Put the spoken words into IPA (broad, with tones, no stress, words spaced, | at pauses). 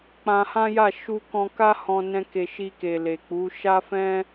k͡pã˧hã˦ja˦˨ ʃu˧ kɔ̃˧ka˦hɔ̃˧ nɛ̃˧ke˨ ʃi˧ke˨le˨ k͡pu˨˦ ʃa˦fɛ̃˦